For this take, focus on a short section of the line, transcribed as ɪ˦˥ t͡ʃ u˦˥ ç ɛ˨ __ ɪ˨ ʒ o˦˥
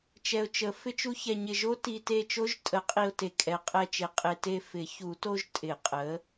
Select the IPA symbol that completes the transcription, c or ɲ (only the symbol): ɲ